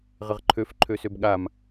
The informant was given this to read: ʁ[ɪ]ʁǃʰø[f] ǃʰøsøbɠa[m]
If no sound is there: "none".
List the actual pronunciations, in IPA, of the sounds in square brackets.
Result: ɪ, f, m

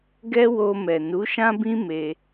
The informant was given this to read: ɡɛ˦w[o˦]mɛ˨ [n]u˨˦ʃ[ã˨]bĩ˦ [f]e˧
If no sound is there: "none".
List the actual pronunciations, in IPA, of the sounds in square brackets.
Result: o˧, n, ã˦, m

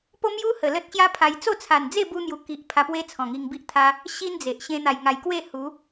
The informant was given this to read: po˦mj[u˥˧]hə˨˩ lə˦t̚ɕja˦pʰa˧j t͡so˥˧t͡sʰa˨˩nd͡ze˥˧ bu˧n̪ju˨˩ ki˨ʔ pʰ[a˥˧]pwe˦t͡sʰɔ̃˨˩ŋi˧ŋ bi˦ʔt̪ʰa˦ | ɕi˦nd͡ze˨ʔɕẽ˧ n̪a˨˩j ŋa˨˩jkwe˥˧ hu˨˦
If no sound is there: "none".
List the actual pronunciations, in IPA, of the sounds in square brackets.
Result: u˦, a˧

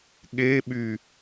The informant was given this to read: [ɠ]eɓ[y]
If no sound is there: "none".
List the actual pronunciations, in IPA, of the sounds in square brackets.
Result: ɠ, y

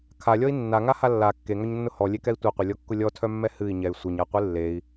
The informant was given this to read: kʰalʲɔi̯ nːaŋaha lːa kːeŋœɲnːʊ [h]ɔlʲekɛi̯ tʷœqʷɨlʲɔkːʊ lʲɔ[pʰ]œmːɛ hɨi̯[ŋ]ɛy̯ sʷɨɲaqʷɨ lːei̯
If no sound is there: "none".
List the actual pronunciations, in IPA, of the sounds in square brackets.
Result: h, tʰ, ɲ

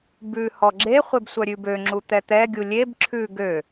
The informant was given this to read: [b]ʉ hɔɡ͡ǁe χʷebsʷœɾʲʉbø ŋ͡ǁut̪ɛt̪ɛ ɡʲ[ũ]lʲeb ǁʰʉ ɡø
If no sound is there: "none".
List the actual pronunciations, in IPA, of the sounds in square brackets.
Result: b, u

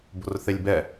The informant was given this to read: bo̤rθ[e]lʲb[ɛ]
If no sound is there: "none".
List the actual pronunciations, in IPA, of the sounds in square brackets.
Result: e, ɛ

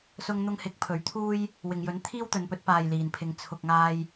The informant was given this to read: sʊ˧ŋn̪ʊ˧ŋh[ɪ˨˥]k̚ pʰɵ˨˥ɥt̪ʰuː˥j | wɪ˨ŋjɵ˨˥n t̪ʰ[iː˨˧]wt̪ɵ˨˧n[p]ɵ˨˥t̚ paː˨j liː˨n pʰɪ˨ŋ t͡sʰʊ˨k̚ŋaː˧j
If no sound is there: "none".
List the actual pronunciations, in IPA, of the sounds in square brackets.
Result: ɪ˨˥, iː˥, p

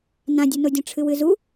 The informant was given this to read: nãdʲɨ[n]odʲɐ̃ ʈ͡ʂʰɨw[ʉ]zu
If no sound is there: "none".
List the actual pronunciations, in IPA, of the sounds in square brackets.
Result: n, ɨ

